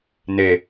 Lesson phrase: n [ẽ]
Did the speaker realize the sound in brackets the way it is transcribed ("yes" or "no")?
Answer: no